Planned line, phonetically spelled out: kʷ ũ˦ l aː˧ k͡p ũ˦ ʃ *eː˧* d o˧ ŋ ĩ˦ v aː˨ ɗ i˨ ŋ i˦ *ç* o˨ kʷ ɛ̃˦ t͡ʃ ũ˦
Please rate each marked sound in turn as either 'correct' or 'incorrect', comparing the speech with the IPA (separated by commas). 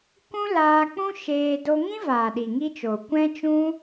correct, incorrect